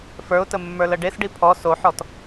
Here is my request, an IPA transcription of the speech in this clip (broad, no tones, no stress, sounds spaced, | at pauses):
f ə˞ ʊ̯ t ə mː ə˞ l ə ɖ e s ɖ i pʰ ɔ s o ħ ɔ t